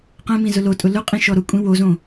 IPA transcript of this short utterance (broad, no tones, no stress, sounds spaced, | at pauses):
q ɛ̃ m ĩ z ʊ l o tʼ ʊ l ʊ qʼ ĩ ʃ ɔ ɾ ʊ kʷʼ ĩ w o z õ